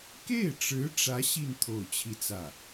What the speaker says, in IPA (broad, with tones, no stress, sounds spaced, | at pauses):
k e˥˩ ɪ̯ ʈ͡ʂ ɻ̩˧˥ ʈ͡ʂ ä˧˥ ɕ i˥˧ n t̪ʰ o˥˧ ʊ̯ t͡ɕʰ i˥˧ t͡s ä˥˩